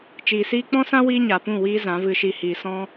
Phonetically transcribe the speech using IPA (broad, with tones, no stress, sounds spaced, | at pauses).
t͡ʃ iː˨ s iː˦ k͡p ɔ̃˦ s ã˦ w iː˦ ɲ a˨ p ũ˦˨ w iː˦ z ã˨˦ v ɨ˧ ʃ i˧ h iː˨ s ɔ̃˦